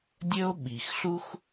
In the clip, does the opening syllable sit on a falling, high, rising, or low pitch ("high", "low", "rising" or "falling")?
high